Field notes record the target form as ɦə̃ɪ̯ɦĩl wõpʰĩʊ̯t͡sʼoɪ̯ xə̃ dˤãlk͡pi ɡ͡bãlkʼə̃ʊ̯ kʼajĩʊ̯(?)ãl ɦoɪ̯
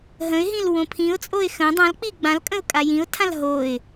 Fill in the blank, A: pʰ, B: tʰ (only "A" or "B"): B